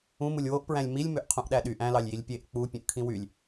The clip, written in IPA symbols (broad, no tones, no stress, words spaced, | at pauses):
ũmulʲ woʔpɹæ̃lʲ milʲ møʔqʰũʔɗæɗy ʔæ̃lɑlʲ jilʲpʲeʔ k͡pu pʲũʔkʰĩwylʲ